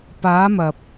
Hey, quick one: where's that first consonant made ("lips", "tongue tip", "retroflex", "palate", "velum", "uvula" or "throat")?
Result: lips